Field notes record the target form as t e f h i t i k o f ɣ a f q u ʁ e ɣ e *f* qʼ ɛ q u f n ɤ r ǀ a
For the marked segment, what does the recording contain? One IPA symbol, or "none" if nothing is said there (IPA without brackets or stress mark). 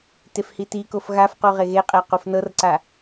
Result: none